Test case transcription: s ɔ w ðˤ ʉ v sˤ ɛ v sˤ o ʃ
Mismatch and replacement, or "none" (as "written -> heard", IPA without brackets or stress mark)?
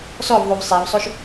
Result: w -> v